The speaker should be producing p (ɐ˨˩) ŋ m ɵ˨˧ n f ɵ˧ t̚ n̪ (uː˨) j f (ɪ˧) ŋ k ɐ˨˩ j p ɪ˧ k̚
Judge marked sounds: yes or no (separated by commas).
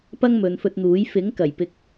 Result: no, no, no